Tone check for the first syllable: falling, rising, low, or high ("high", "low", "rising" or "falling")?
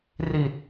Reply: low